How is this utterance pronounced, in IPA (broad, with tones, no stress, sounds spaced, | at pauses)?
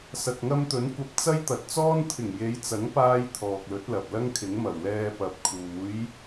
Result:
s ɐ˨ k̚ ŋ ɐ˧ m t̪ ɵ˨˥ n kʷ ɐ˧ p̚ t͡s ɐ˥ j t̪ ɐ˨˥ t̚ t͡s ɔː˥ n t̪ʰ ɪ˨˩ ŋ j e˨˧ j t͡s ɐ˨˥ ŋ p aː˧ j t̪ʰ ɔː˨ k̚ l ɵ˨˥ t̚ l ɐ˨ p̚ l ɐ˥ ŋ kʰ ɪ˨˥ ŋ m ɐ˨˩ w l ɛː˧ p ɐ˨ p̚ kʰ uː˨˥ j